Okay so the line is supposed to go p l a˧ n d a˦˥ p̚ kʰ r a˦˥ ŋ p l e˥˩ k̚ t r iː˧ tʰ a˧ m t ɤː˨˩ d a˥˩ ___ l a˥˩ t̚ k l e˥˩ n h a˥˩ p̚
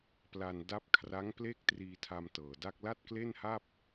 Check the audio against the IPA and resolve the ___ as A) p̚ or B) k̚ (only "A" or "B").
B